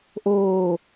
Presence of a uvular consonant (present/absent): absent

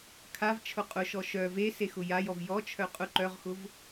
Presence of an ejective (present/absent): present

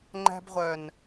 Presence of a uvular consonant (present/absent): present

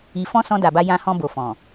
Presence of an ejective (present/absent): absent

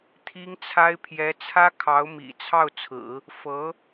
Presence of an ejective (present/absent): absent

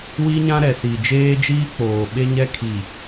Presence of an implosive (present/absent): present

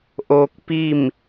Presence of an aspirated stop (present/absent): absent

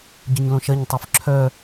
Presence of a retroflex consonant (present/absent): absent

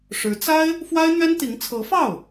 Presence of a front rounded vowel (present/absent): absent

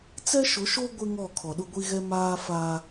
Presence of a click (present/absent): absent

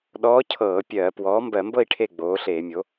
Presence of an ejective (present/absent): absent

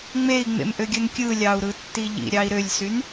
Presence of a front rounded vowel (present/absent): present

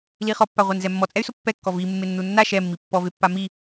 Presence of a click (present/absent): absent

